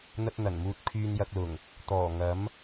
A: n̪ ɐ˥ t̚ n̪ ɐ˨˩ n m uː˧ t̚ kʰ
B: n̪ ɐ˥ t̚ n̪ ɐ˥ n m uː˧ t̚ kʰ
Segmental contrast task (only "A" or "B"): A